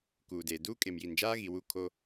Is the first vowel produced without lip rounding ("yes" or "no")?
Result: no